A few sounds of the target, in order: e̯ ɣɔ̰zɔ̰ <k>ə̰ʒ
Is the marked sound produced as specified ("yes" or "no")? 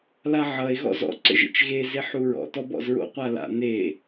no